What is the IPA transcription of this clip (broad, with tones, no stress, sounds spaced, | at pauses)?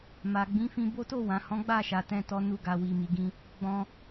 m a˨ ɡ͡b ĩ˨˦ f ĩ˧ b o˦ t o˦˨ w ã˨ h ɔ̃˨˦ ɡ͡b a˦˨ ʃ a˧ t ɛ̃˦ t ɔ˦ n u˧ ɡ a˨ w i˨ m i˨ ɡ ĩ˧ | ɡ͡b ɔ̃˦